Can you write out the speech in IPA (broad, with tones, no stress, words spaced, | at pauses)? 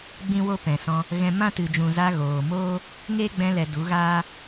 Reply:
ɡ͡bĩ˦wo˦ pɛ̃˨sɔ̃˧ | ɣɛ̃˧ mã˦tɨ˨d͡ʒũ˨za˧ ɣoː˨moː˦ | ŋe˦ɡ͡bɛ̃˧lɛ˨ du˨˦ɣaː˦